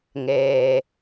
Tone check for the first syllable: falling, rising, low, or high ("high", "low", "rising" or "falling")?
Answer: low